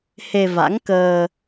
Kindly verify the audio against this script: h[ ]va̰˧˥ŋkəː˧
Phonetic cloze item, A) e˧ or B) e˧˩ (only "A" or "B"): A